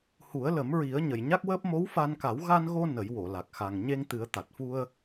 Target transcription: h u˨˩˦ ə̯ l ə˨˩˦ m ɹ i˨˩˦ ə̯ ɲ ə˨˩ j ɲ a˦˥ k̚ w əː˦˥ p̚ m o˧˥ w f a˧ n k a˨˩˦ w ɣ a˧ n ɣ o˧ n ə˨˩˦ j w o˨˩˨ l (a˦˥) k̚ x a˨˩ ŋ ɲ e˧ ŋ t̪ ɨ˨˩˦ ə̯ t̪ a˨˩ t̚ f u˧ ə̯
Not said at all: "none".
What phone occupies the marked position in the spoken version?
a˨˩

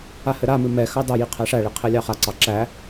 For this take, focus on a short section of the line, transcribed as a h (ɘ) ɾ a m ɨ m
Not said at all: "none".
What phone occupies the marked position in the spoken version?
ɘ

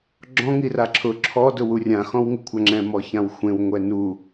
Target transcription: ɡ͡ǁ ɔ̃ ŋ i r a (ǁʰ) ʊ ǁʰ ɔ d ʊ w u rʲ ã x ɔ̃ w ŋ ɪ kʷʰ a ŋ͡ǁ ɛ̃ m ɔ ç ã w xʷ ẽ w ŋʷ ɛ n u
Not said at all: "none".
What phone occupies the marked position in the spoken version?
ǁʰ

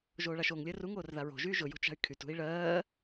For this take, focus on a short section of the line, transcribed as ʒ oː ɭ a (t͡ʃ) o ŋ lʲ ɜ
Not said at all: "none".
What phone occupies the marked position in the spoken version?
ʃ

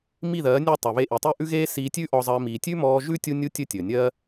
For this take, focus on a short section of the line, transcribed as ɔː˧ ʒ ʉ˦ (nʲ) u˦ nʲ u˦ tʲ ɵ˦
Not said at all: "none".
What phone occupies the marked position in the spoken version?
tʲ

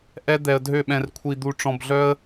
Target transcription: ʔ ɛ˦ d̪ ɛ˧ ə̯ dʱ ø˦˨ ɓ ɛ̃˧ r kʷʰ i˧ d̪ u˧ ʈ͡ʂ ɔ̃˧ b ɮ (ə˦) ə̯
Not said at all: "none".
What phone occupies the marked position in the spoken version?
œ˦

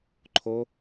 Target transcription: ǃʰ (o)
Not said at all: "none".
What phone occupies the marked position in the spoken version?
o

